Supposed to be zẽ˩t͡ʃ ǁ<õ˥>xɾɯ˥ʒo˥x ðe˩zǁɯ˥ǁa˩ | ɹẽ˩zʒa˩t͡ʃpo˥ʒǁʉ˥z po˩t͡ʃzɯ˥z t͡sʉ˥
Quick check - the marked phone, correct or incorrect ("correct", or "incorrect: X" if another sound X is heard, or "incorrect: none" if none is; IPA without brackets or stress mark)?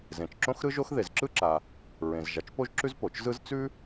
correct